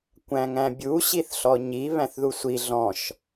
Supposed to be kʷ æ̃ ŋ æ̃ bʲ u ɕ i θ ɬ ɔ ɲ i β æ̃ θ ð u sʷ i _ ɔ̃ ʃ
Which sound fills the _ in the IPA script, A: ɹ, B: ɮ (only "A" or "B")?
B